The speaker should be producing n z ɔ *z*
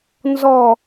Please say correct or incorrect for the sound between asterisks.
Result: incorrect